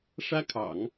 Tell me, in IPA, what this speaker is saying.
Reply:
ʂ ä˥ kʰ ɑ̰˨˩˦ ŋ

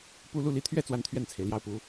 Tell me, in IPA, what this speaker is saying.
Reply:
p u˥˧ l u˥˩ l i˧˥ t̪ʰ ɥ ɛ˥˧ t͡s w a˥˧ n t̪ʰ ɥ ɛ˥˩ n t͡sʰ e˩ ɪ̯ l j ɑ˥˩ ʊ̯ p u˧˥

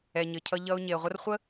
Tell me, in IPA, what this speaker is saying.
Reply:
ɛ˨ ɲ ɘ˨ cʰ ʌ˧ ʎ ʌ˧ ʊ̯ ɲ e˨ ə̯ ʁʷ ə˦ r χʷ ə˦

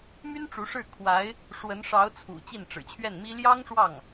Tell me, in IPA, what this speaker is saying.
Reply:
m y˥ n ʈ͡ʂ u˧˥ ʂ ɻ̩˥˩ kʰ w a˧˥ ɪ̯ | ʂ w ə˧˥ n ʂ ɑ˧˥ ʊ̯ t͡sʰ ṵ˨˩ t͡ɕ i˥˩ n ʈ͡ʂ ɻ̩˨˩ t͡ɕʰ ɥ ɛ˥˩ n m i˥ l j ɑ˥ ŋ ʂ w ɑ˥˩ ŋ

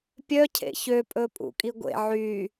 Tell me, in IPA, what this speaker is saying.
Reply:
pʲ œ cʰ ḛ ç ø pʼ ɵ pʼ ṵ kʼ i ɡʷ ḛ ʕ y

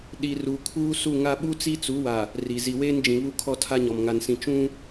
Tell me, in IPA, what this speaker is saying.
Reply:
ɗ i˨ r uː˨ kʰ uː˦ s u˦˨ ŋ a˦ ɓ u˦ t͡s i˦ t͡s u˨˦ w a˨ | r i˨ z i˨ w eː˦ n d͡ʒ ĩ˨ β u˦ kʰ ɔ˦ tʰ a˦ ɲ ɔ˨ m ŋ a˨ n s ĩ˨ t͡ʃ ũ˦

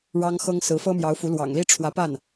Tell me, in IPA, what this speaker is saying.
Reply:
ɻ ɑ˥ ŋ x ɤ˥ ŋ s ɹ̩˧˥ f ɤ˥ m j ɑ˧˥ ʊ̯ f u˧˥ l w ɑ̰˨˩ ŋ l i˥ ʈ͡ʂʰ w ä˧˥ p a˥˩ n

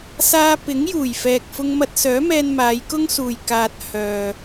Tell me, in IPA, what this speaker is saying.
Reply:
s aː˧ p ɪ˨˥ ŋ j uː˨˩ j f ɛː˨ k̚ f ʊ˧ ŋ m ɐ˧ t̚ s œː˨˥ m ɛː˧ n m aː˨˧ j k ʊ˥ ŋ s uː˨ j k aː˧ t̚ h œː˨

